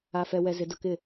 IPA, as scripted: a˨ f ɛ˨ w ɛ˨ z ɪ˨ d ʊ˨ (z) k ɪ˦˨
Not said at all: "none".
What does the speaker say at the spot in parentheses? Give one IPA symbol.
none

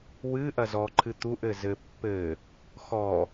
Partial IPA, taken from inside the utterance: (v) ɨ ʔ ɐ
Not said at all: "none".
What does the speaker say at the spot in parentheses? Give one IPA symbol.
w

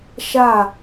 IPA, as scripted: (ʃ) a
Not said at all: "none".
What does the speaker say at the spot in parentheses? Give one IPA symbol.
ʃ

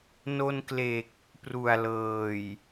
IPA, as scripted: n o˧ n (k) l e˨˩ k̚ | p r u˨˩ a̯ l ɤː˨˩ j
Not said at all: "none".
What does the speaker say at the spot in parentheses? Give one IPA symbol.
k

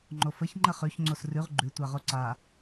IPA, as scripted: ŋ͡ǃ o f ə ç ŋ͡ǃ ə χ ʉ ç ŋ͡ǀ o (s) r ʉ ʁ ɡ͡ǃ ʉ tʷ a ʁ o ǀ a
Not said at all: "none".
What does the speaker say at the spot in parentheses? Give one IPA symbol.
s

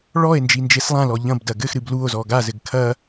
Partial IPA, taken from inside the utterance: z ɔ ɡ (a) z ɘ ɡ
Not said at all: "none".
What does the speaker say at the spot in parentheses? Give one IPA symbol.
a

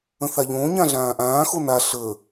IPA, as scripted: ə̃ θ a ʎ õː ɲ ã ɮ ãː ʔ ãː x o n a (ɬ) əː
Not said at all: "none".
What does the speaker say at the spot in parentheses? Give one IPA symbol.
ɬ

